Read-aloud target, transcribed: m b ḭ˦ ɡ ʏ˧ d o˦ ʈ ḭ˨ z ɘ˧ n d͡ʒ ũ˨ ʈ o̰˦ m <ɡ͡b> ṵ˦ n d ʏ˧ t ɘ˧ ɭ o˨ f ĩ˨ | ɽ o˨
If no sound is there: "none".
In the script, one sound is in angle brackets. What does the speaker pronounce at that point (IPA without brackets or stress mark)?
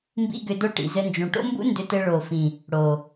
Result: b